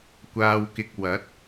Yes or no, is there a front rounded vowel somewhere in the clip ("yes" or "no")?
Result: no